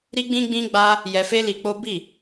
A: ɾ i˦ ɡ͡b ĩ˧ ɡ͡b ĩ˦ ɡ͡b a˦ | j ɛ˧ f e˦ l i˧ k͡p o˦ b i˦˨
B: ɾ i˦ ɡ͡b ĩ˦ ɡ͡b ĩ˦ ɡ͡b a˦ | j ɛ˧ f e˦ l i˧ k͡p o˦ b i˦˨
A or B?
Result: B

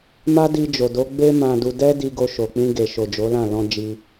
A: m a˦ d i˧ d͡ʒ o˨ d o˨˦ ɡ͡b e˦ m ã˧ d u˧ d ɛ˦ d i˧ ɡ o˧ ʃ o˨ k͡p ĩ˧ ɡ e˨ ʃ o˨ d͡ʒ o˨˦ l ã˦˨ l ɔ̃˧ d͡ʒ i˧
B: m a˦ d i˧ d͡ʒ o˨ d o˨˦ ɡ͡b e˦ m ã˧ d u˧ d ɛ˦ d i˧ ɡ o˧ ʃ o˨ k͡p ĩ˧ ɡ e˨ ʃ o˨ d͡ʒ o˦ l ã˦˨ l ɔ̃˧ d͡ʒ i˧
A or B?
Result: A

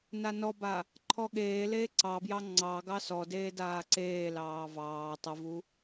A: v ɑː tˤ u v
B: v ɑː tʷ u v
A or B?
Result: A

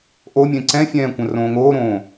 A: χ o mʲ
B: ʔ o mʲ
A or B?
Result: B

